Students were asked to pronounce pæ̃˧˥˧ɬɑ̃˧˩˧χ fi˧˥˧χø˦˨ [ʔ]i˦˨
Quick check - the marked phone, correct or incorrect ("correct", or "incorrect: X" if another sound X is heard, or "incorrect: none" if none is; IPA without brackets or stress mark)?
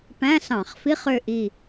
correct